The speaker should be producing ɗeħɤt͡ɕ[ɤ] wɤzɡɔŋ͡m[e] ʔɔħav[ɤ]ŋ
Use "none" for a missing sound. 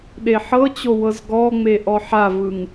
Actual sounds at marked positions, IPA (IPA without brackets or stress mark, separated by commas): o, e, ɯ